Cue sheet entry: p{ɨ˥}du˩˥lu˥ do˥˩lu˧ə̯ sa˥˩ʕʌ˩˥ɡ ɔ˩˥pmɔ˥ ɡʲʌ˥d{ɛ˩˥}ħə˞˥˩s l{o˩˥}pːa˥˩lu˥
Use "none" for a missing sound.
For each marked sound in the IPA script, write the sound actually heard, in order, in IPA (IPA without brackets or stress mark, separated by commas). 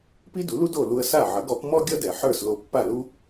i˥, ɛ˩, o˧